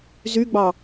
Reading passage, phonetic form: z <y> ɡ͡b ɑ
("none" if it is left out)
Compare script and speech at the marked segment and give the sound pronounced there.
y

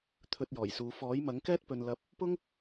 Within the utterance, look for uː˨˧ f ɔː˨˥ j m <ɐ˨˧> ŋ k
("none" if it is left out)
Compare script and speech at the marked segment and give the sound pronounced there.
ɐ˨˥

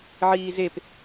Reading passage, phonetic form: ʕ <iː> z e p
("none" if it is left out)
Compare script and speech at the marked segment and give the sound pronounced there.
iː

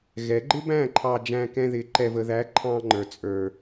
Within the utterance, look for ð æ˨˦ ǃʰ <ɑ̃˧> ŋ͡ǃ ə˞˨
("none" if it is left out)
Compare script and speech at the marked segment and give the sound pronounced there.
ɑ̃˧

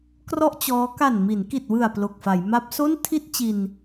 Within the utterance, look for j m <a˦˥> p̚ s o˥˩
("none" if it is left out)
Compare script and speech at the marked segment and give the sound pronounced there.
a˦˥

